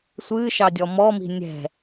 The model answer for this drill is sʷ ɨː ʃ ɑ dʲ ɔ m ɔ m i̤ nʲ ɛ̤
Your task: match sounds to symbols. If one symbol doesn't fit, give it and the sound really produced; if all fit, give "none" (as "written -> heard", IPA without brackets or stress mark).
none